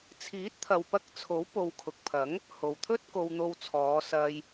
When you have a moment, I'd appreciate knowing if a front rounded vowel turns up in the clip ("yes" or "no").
no